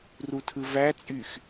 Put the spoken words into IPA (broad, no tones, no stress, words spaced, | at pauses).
rutʰɯvæt͡sʼyx